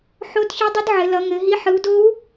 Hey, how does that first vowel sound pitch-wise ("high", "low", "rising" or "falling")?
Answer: rising